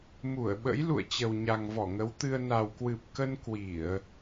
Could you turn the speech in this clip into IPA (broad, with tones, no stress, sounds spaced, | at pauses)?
m u˧˩ ə̯ ɓ ə̰˧˥ j l ṵ˧˨ ə̯ t͡ɕ ə˨˩ w ɲ a˨˩ ŋ v ɔ˧˩ ŋ ə˨˦ w t̪ ɨ˧ ə̯ n a˨˩ w k w ɨ˨˩ p̚ k ə˧ n k w i˧˩˨ ə̯